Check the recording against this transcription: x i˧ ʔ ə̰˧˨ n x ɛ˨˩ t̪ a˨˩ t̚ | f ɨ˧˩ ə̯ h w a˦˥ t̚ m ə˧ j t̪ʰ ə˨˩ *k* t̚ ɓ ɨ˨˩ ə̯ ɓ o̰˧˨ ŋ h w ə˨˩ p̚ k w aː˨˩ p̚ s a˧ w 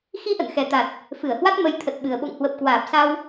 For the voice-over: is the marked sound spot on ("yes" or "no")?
no